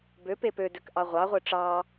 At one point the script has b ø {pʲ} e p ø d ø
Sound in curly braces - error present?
yes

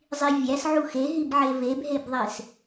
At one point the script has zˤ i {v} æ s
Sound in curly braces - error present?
yes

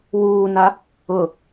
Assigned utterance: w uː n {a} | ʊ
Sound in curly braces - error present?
no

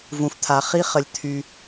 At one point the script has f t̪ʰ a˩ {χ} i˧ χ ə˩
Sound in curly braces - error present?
no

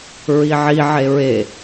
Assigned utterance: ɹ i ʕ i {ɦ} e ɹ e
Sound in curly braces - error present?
yes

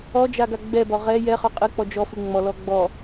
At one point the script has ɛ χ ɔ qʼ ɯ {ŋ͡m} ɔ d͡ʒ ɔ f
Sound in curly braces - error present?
yes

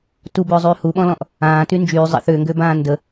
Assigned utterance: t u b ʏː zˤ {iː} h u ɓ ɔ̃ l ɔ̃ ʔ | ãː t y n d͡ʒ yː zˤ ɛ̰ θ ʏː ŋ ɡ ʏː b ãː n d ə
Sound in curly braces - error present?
yes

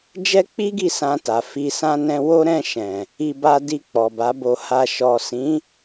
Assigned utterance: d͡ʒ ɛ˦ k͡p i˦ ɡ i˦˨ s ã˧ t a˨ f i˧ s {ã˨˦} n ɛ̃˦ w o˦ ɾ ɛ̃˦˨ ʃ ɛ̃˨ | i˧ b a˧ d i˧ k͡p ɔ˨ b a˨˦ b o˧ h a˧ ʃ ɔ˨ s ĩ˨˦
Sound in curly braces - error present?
yes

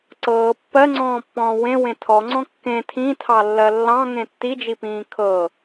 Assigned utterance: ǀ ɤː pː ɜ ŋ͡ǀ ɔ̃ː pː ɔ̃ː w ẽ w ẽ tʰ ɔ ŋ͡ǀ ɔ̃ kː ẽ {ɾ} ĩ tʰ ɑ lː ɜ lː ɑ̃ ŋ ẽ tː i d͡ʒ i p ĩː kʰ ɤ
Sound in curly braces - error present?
yes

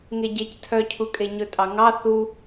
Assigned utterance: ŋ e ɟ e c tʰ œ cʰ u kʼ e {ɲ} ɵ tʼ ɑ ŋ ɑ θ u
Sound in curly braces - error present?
no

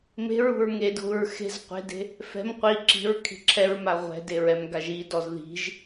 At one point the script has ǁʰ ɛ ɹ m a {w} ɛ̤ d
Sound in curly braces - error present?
yes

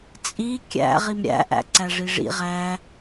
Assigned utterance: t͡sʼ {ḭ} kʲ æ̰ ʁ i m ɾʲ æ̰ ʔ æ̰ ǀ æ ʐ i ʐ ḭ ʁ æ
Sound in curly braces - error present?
yes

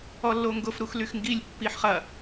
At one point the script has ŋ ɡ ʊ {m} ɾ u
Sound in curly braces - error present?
yes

